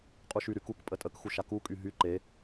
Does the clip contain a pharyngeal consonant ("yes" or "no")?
no